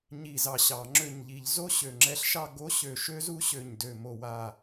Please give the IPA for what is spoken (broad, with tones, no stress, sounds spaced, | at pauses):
ɲ i˧˩ z ɑ˧˩ ɕ ɑ˧˩˧ ŋ͡ǁ ø˧˩ ɲ ʎ i˧˩˧ ʎ z o˦˥ ɕ ø˧˩ ŋ͡ǁ ɛ˦˥ ɬ ʃ ɑ˥˧ ɡ o˦˥ ɕ ø˧˩ ʃ ø˦˥ z u˦˥ ɕ ø˧˩ ɲ d ø˧˩ m o˧˩ w a˧˩